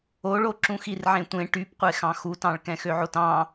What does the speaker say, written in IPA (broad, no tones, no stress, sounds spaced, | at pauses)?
o ɭ o ǁ ũ x i r ʕ ẽ tʷ ẽ ʈ y p qʷ e x ɑ̃ x u t ɑ̃ ɭ k ɛ̃ x ø ʕ o t ɑ̃